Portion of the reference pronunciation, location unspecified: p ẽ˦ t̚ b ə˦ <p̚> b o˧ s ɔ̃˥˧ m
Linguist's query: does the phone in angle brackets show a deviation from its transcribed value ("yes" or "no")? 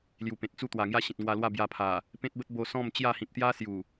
yes